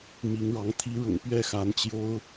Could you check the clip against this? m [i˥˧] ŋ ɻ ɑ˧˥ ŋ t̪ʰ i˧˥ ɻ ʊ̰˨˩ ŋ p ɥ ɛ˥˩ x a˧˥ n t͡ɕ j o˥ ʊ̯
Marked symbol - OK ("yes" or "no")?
no